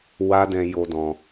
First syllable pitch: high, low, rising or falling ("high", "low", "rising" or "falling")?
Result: high